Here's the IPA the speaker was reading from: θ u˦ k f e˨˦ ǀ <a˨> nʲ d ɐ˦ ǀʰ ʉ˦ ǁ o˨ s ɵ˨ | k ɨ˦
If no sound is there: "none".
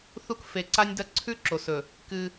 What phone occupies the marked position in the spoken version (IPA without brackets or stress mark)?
a˦